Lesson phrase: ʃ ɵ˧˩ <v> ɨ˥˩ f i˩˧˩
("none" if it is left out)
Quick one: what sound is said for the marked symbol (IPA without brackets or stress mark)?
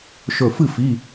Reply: f